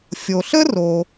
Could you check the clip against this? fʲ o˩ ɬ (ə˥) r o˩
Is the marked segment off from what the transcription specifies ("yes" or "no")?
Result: no